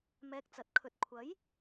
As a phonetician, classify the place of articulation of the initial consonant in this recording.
labial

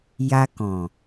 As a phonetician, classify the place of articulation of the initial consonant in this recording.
palatal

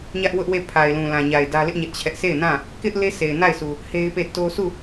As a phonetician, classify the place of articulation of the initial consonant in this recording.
palatal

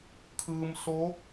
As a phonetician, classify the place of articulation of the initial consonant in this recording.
velar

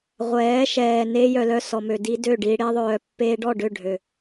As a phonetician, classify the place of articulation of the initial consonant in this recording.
uvular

